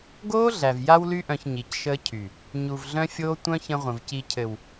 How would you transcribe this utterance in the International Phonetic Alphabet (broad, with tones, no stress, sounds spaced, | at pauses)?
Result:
ɡ oː˦ ɮ æ˨ v j a˧ w l y˧ ʔ œ̃˨ ç ɲ i˨ c ʃ əː˧ cʰ y˨ | ɲ u˨ v ɮ œ̃˧ fʲ oː˧ tʷ œ̃˦ ç ə̃˧ ʁʷ ə̃˨ v c i˨ cʰ ɘ˨ w